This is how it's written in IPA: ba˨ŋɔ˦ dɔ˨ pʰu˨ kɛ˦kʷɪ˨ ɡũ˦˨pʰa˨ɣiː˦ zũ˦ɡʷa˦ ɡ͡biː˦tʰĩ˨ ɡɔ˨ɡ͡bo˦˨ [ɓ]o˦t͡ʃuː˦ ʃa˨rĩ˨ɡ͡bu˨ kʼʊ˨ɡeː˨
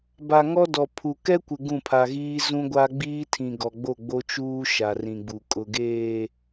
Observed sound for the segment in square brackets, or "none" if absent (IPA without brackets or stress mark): ɡ͡b